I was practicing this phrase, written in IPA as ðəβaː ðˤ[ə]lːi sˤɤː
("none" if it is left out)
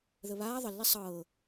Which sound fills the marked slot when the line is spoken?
ə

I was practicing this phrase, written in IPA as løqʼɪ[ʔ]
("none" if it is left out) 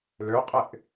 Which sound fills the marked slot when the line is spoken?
ʔ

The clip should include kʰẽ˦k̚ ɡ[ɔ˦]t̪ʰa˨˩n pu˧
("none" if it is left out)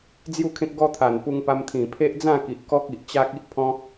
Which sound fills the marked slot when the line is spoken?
ɔ˦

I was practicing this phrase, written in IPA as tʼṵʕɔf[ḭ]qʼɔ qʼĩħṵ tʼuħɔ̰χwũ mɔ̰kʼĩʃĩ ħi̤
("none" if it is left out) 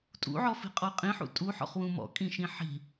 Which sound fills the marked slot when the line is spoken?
i̤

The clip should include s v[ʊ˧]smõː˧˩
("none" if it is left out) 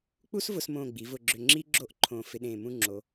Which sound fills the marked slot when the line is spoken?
ʊ˧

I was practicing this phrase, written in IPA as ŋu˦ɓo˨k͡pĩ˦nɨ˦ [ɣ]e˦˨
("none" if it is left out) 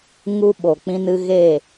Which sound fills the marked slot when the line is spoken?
ɣ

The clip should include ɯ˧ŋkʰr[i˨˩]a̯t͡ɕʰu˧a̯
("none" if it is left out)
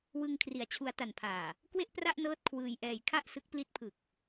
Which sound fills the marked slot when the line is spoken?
i˨˩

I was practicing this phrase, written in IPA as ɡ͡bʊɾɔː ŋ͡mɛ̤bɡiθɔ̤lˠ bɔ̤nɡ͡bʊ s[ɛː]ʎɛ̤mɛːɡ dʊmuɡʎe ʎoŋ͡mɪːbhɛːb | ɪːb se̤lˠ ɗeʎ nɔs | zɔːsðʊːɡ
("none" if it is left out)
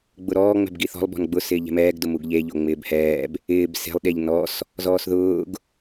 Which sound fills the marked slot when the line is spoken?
ɪː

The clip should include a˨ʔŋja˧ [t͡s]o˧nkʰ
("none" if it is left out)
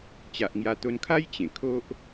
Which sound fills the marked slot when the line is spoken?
t̪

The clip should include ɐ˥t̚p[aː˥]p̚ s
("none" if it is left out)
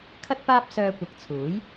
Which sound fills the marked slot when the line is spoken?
aː˥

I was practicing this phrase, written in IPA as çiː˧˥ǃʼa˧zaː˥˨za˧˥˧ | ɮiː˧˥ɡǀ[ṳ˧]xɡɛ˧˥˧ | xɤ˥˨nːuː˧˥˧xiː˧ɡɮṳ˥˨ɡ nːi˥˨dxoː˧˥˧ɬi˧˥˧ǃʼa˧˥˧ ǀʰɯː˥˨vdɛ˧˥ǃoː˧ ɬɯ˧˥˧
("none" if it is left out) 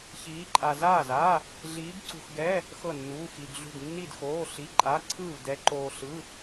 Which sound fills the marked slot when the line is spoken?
ṳ˧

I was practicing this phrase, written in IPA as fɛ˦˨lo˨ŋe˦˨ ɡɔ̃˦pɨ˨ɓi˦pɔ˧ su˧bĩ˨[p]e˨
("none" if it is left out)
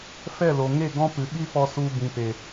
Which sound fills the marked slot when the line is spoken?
p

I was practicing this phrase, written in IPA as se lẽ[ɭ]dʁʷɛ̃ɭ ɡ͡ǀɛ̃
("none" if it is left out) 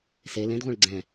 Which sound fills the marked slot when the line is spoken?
none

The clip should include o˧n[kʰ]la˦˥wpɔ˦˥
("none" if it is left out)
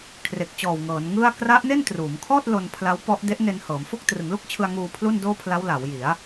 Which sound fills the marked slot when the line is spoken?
pʰ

